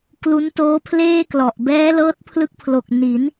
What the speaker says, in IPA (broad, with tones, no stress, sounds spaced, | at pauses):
k l u˦˥ n t oː˦˥ pʰ l eː˥˩ k l ɔ˨˩ ʔ b ɛː˦˥ l ɤː˦˥ t̚ pʰ l ɯ˦˥ k̚ pʰ l o˨˩ k̚ n i˩˦ n